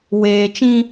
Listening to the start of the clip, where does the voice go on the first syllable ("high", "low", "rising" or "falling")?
low